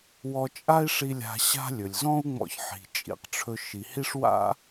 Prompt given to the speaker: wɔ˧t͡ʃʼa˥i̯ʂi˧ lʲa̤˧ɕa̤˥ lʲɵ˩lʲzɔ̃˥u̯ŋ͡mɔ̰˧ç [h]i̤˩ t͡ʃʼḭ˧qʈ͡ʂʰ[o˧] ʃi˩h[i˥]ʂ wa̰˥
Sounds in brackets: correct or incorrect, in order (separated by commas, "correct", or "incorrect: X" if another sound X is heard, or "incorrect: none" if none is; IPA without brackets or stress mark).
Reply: incorrect: ħ, incorrect: ɵ˧, correct